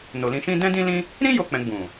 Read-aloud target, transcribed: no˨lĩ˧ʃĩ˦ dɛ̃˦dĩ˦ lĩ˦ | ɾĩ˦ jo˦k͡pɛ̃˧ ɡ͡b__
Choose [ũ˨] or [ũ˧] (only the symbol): ũ˨